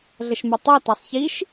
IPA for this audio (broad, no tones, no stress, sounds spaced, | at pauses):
ɮ ə ʃ m a tˤ a t a sˤ ç i ʃ